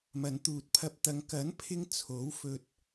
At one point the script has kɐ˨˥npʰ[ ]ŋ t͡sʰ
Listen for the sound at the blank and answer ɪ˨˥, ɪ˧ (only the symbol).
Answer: ɪ˧